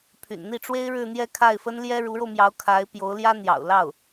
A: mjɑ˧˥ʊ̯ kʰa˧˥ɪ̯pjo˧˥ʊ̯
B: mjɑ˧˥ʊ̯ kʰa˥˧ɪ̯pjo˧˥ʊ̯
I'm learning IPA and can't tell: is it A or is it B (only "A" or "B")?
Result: A